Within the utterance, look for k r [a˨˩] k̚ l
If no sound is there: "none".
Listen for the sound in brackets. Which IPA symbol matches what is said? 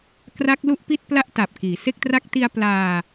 a˦˥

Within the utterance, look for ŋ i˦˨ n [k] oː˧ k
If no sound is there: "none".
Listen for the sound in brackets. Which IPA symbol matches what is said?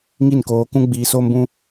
k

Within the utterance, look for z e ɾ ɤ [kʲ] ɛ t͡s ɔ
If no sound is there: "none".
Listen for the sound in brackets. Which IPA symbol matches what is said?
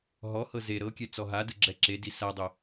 kʲ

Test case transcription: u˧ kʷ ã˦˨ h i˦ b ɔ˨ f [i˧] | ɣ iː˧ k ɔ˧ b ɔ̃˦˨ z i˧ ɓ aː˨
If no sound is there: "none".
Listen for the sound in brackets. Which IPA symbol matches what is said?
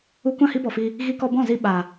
iː˧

